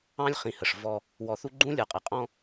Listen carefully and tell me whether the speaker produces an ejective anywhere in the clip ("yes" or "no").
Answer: yes